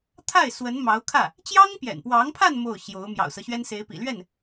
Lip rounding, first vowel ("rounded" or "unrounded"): unrounded